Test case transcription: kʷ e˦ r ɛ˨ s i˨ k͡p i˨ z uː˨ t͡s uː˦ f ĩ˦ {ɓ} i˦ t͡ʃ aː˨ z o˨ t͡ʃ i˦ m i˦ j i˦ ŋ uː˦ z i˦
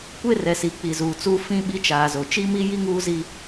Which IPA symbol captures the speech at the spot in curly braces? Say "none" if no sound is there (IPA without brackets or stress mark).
ɓ